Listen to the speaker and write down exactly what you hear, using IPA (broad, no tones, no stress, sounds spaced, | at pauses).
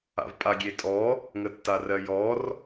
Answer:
a̰ v pʼ a ɡʲ e tʼ ɔ | ŋ ə tː a r ɜ j ɔ r